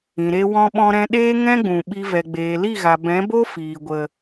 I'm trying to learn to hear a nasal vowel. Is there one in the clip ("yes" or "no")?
yes